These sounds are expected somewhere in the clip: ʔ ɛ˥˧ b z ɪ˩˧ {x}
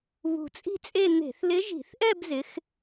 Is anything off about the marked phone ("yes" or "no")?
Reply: no